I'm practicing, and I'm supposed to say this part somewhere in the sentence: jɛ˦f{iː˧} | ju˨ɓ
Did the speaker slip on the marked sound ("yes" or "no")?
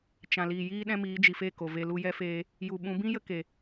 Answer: yes